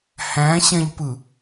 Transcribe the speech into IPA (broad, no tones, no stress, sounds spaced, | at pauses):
h æ̃ ɕ ɛ̃ ʎ p ɯ